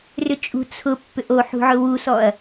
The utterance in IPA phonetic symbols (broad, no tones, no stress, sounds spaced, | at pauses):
r ʏ t͡ʃʼ ṳ t͡sʰ ʊ pː ʏ ʔ o ħ ṳ ʕ ʊ w u s ɔ ɐ̯